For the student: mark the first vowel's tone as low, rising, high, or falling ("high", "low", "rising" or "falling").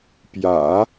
low